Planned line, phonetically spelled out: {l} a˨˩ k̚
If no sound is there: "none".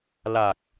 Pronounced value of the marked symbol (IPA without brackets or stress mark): l